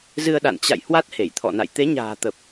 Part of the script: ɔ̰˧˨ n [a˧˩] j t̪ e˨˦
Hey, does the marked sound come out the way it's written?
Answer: no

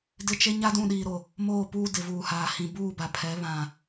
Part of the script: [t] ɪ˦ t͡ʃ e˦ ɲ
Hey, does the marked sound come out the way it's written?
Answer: no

